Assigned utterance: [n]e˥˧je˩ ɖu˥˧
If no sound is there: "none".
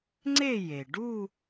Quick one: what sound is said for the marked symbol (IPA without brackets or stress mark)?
ŋ͡ǀ